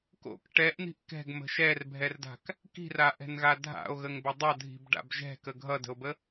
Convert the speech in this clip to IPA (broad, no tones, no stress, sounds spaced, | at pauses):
k o̰ k ʈ ɛ ʔ n̪ i̤ ʔ k ɛ̤ ɡ m ə̤ ʃ ɛ r bʱ ɛ r d a̤ k | k i̤ r a ʔ ɛ̤ n ɣ a dʱ a̰ o̯ ɣ ə ŋ b ə dˤ ʌ dʱ i̤ b ɖ a̰ b ʒ ɛ̤ k ə ɡʱ ʌ d ə̤ o̯ b ə